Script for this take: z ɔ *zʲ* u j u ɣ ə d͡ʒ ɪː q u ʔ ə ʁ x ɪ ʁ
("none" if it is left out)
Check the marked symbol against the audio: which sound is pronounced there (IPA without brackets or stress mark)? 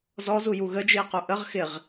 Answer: z